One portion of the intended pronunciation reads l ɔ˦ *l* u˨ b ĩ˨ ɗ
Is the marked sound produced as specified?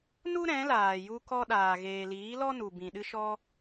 no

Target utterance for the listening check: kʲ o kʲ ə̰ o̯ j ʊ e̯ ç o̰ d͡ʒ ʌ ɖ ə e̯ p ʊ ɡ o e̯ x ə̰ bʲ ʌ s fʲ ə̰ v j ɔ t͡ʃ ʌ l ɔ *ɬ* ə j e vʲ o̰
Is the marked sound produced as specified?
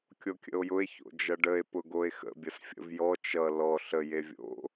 yes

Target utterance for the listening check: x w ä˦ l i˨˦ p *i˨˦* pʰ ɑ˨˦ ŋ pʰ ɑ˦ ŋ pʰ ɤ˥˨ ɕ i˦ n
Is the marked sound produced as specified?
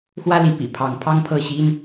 no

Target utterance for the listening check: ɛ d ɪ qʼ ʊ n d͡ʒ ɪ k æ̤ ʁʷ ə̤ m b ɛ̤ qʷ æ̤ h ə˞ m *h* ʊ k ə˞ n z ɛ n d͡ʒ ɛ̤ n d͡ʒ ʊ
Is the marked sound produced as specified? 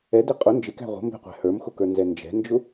no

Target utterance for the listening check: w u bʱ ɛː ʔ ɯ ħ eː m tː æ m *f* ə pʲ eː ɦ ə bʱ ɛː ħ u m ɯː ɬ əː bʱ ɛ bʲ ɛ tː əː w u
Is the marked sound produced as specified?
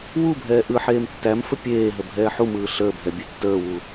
yes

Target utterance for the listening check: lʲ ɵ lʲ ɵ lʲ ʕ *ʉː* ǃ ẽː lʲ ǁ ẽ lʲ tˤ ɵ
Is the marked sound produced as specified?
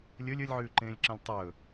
yes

